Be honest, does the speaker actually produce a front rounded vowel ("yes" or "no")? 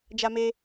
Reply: no